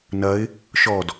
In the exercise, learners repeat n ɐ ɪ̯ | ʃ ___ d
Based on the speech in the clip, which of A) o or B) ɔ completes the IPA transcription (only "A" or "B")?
B